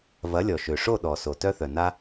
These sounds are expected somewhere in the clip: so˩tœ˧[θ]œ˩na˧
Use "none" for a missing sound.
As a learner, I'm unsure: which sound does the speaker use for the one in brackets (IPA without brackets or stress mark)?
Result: θ